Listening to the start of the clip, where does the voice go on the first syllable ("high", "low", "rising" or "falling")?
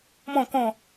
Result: falling